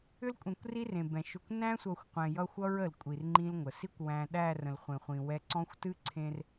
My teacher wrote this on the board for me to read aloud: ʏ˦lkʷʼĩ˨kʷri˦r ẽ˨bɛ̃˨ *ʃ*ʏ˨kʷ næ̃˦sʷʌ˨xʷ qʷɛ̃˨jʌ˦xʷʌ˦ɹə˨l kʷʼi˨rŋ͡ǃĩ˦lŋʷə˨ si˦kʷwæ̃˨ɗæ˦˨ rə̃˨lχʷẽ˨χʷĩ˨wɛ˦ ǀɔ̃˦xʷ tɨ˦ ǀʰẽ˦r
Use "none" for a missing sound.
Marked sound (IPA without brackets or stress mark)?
ʃ